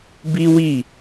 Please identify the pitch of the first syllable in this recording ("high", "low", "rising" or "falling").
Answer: high